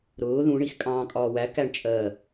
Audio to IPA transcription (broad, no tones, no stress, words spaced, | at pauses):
ɾʊː ðũɳix kʼɑ̃ːkʼɒːwæ kæɳt͡ʃʼɜ